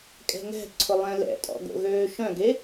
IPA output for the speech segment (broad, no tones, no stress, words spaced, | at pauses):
kʼɛ̤ŋɛ̤ǀʰʊ lˠɛ̃lɛ̰tʼɔ̰ ɡo̰ɣøːʃœ̃ɡe